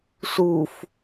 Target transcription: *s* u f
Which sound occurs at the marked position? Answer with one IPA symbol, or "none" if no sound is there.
s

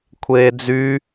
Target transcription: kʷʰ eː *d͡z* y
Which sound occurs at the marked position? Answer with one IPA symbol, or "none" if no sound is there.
d͡z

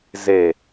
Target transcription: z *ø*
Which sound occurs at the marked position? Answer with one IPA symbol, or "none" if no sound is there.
e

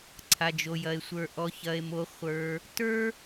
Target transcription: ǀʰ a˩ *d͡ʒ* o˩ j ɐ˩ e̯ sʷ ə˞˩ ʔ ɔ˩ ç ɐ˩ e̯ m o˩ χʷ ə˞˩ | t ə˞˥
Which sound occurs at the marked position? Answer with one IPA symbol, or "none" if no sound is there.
d͡ʒ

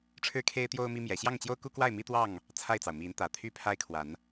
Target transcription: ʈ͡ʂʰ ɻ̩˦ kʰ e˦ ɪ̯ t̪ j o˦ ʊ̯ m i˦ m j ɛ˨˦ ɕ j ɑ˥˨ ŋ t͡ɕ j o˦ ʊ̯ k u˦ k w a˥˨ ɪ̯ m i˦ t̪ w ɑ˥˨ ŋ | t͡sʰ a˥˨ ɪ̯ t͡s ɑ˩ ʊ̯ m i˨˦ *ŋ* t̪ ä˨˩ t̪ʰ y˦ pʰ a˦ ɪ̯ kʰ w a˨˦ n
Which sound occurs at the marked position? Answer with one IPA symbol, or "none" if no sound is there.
n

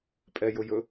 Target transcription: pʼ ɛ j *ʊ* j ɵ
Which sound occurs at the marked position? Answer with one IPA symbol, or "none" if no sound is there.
ʊ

